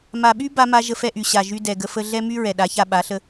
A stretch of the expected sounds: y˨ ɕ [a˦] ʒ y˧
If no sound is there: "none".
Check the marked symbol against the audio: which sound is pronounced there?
a˨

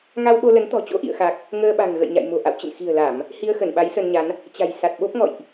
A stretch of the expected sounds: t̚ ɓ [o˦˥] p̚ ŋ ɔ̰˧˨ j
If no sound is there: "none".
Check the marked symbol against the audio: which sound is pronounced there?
o˦˥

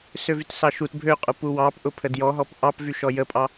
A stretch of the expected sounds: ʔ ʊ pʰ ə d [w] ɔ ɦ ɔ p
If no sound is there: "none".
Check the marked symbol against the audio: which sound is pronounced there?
j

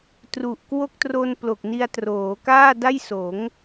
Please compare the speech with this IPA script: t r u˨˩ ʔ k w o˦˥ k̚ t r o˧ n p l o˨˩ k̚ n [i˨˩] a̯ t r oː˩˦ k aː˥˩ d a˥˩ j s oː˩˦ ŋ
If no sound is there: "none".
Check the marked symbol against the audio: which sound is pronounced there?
i˧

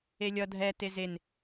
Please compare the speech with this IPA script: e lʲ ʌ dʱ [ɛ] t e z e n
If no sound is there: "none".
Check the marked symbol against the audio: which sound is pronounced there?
ɛ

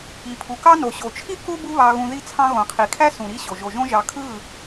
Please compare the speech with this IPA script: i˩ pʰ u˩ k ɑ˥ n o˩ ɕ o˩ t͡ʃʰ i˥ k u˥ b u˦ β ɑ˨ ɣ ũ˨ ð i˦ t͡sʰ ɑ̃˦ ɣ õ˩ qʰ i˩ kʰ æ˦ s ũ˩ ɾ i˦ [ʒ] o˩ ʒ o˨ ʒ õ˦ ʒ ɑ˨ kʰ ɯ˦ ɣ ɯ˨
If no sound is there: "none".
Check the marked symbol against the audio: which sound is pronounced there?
ɕ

